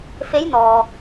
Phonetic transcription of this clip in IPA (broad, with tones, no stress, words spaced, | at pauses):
fe˧˥jnɔː˩